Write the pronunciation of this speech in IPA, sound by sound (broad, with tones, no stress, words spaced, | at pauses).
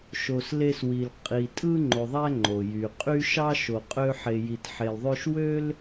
ʃo˧sle˦swi˧l qʼi˧ tʼɯ˦ ŋ͡ǃo˨ðˤæ˧ ŋ͡ǃo˨jy˨qʼy˦ ʃɑ˦ ʃo˧qʼø˦ ħe˧ji˧t ħe˧lðˤø˦ʃ wø˦l